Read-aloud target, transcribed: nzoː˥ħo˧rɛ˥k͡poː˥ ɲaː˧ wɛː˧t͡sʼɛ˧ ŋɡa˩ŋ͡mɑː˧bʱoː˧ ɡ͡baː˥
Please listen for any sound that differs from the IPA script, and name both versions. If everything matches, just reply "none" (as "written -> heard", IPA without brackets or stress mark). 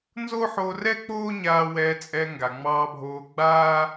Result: none